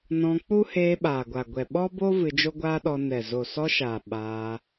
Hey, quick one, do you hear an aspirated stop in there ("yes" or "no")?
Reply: no